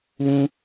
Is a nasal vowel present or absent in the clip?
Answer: present